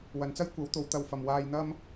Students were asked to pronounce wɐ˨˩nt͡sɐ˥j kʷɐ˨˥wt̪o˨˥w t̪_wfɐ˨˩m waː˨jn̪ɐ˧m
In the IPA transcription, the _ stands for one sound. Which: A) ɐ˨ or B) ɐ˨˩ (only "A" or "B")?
A